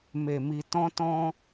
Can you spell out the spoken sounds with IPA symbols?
m e˧ m i˧ t ɔ̃˦ t ɔ̃˦

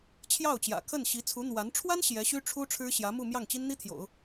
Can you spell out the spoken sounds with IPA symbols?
t͡ɕʰ j ɑ˥˩ ʊ̯ t͡ɕ j ä̰˨˩ kʰ ə˥˩ n ɕ i˧˥ t͡sʰ u˧˥ n̪ w a˧˥ n ʈ͡ʂʰ w a˥ n ɕ j ɛ˧˥ ɕ y˥ ʈ͡ʂʰ u˥ ʈ͡ʂʰ ɻ̩˥ ɕ j ä˧˥ m u˥˧ m j ɑ˥˩ ŋ t͡ɕ i˥ n n̪ i˥ t̪ʰ j o̰˨˩˦ ʊ̯

